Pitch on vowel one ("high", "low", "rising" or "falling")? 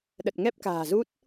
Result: low